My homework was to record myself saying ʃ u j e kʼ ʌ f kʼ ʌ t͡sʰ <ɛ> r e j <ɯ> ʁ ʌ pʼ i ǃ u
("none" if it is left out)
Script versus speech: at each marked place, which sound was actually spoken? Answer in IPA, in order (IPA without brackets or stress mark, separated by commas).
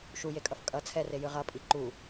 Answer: ɛ, ɯ